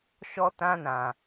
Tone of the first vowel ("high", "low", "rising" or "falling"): high